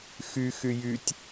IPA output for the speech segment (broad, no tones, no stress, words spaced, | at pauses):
xy xyjytʲ